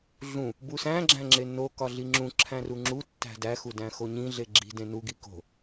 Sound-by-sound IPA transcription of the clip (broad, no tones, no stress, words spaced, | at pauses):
ɮũ | busæ̃ ɡ͡ǁæ̃ŋ͡ǁenːo kɒɮiŋ͡ǁũ ǁʰæ̃ruŋ͡ǁu tːæ̤dæ xudæ̃xoɲĩ ɮeɡ͡ǁi̤ dẽnu ɡiko̤